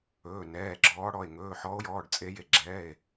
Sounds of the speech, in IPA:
ɵː˩˧˩nɛː˩˧˩ ɡ͡ǁɔː˨˦ɽɔ˩˧˩e̯ ŋɵː˩˧˩ħɔ˨˦o̯jɔː˩˧˩ɖ t͡sʼe˨˦je˩˧˩ɡ͡ǁɛː˩˧˩e̯

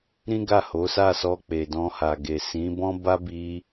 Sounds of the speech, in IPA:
ɾĩ˦ɡa˦˨ho˨˦ sa˦˨sɔ˧ k͡pe˨dɔ̃˧ha˨ ɡe˨ sĩ˨˦bɔ̃˦ba˦bi˧

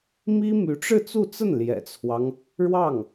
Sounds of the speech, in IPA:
mi˥my˧˥ʈ͡ʂɻ̩˥˧ t͡su˥˧t͡sə˥˩n ljɛ̰˨˩t͡sʰwɑ˦ŋ | ɻwɑ˥˩ŋ

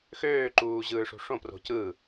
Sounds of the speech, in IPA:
xøːǃuːʑɯːʂo̤ ʂõpro̤ cɯ

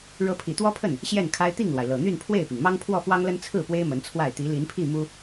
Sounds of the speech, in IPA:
ɻɤ˧˥pʰi˨˩t̪wɔ˥pʰə˥˩n | ɕjɛ˥˩nkʰa˥ɪ̯ t̪i˥˩ŋlwa˩ɪ̯lɤ˨˩ n̪y˥˧npʰwe˥˩ɪ̯pi˩ŋ mɑ˥ŋpʰwɔ˥˩fwɑ˥ŋlə˥n t͡sʰɹ̩˥˩pwe˥ɪ̯ mə˧˥nt͡sʰwa˥˩ɪ̯ t̪i˧˥li˧˥npʰi˥˩ mu˥

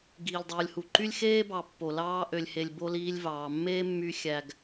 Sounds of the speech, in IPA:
ɡiː˨lʲdˤuː˨lʲhu˨ǃy˦lʲ xeː˦bɑ˨ pːo˨lɑː˦ ʔø˨lʲhe˨lʲ bo˦liː˦lʲvɑː˨ mːeː˦ mːy˦ xʲæ˨ɡ

